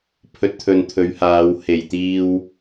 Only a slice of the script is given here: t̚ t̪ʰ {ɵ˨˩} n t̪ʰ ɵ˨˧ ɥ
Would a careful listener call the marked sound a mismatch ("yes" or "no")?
yes